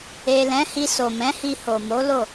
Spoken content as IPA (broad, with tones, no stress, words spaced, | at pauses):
e˨lɛ̃˨˦ hi˧so˨mɛ̃˨˦hi˧ ho˨mo˨˦lo˦˨